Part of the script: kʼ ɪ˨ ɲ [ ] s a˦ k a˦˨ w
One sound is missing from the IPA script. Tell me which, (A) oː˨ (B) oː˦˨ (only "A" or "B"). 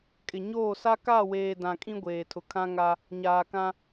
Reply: B